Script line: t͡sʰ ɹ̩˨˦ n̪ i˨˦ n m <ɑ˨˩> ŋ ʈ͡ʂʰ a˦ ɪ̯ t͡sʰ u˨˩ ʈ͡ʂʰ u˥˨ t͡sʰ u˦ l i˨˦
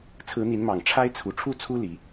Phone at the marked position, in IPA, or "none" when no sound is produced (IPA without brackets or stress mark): ɑ˨˩